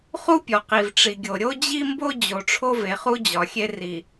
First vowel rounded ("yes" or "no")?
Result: yes